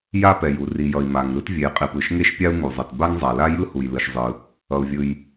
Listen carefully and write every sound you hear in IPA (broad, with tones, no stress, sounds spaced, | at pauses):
j a˥ p ɛ˩ j u˩ r i˩ j ʌ˩ i̯ m a˩ ŋ ɾ ɯ˥ t vʲ e˩ j qʼ i˩ p ɯ˩ ʃ ŋ e˥ ʃ pʲ a˥ u̯ ŋ u˩ zˤ ʌ˩ t b a˥ ŋ zˤ a˩ l a˥ j ɯ˥ h u˩ j l ɯ˩ ʃ zˤ ɯ˩ | ʌ˩ u̯ vʲ ɯ˩ j